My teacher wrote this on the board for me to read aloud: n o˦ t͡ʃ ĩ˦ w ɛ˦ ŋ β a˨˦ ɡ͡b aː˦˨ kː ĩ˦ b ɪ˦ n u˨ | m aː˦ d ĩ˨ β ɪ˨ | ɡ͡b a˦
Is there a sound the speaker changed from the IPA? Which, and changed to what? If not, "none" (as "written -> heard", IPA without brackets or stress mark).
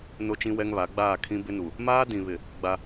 kː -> kʰ